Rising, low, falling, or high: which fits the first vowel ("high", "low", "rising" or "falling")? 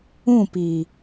falling